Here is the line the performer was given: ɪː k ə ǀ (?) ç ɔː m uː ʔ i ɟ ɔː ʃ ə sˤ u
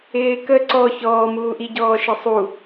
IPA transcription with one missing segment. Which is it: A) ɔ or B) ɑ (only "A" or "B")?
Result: A